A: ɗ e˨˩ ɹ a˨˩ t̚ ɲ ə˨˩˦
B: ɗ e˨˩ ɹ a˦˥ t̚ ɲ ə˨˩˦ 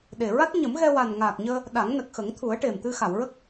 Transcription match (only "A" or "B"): B